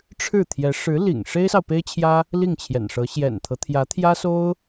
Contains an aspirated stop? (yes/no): yes